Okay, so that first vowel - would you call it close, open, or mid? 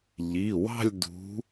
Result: close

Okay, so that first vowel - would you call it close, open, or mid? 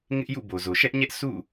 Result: close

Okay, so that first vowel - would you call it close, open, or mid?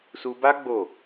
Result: close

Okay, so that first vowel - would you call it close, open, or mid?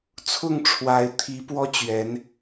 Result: close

